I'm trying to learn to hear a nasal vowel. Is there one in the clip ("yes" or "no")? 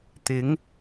no